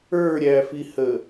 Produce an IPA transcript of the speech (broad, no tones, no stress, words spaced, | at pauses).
ə˞ɾʲæfihə